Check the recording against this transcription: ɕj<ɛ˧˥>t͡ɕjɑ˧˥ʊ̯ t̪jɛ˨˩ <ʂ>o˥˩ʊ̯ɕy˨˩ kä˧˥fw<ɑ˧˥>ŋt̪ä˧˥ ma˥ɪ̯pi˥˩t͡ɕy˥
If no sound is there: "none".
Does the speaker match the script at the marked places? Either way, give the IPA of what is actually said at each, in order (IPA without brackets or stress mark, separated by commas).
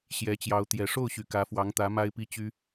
ɛ˧˥, ʂ, ɑ˧˥